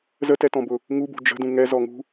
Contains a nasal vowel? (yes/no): yes